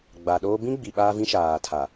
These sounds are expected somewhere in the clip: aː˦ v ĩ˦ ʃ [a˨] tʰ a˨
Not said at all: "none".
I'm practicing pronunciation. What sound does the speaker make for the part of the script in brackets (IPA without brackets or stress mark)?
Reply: aː˨